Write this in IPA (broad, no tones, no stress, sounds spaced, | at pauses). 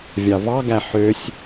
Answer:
vʲ ɑ v ɑ ɡ æ ħ ø sʲ